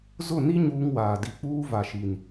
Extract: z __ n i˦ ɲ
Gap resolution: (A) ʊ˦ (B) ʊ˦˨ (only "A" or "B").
B